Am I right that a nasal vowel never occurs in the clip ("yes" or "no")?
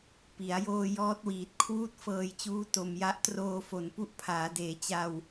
yes